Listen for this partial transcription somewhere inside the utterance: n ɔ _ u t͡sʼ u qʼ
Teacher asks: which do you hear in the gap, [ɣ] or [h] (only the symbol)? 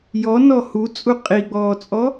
h